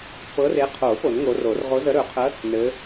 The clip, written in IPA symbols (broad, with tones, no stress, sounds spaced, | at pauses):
p ɤ˨˦ r e˨˦ qʰ o˨˩˦ p o˨˩˦ n ŋ o˨˦ r o˨˩˦ r ʁ o˨˦ z ə˨˦ ɾ ɵ˨˩˦ qʰ ə˨˦ | n ɘ˨˦